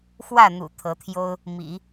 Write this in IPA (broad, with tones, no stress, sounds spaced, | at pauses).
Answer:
x w ä˥˩ n̪ ṵ˨˩ t̪ʰ ɤ˧˥ t̪ʰ j o˥ ʊ̯ | m ḭ˨˩˦